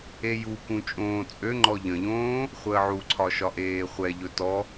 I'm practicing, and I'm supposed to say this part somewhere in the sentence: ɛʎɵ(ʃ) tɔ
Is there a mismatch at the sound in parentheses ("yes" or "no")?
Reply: yes